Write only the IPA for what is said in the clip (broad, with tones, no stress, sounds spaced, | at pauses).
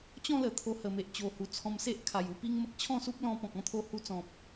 t͡ɕ ɔ̃˥˧ l ə˨˩ t̪ʰ o˧ h ə˨˩ m e˨ ʔ t͡ɕ o˨˩ h u˨˩ t͡sʰ ɔ̃˧ m s e˦ ʔ kʰ a˨˩ j u˧ p i˦ ŋ m ə˦ k̚ t͡ɕʰ ɔ̃˥˧ s u˦ p̚ l ɔ̃˧ p ɔ̃˨ k̚ ɔ̃˧ t̪ʰ o˧ h u˧ t͡s ɔ̃˨ p̚